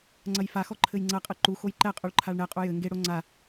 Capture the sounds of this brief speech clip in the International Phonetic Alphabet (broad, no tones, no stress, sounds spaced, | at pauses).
ŋ͡ǀ ɐ j f a x ɔ ǃʰ ɘ j ŋ͡ǀ ɐ qʼ ɨ ǃ u x o j ǃ ɛ qʼ u ɭ ǃʰ a ɭ ɳ ɛ qʼ u j ɘ ŋ ɡ e ɽ o ŋ͡ǀ a